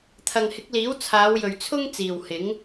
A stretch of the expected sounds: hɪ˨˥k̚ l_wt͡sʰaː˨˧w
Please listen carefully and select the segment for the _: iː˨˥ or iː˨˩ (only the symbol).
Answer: iː˨˥